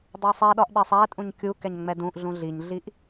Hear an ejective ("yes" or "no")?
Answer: yes